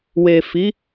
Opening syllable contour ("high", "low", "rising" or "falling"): low